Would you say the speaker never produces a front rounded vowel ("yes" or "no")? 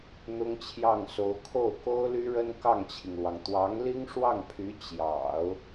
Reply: no